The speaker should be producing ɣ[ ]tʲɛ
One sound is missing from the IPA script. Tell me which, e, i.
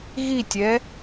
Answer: i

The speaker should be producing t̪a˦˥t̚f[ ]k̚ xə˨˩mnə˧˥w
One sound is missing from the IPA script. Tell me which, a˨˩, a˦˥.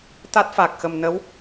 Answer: a˨˩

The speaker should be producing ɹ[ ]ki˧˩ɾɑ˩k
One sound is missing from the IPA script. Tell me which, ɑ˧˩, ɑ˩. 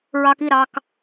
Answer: ɑ˩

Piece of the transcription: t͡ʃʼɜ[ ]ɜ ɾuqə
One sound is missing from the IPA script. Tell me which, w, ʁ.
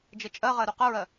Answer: ʁ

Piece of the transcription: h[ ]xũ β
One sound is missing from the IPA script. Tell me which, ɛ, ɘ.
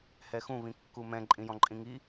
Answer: ɛ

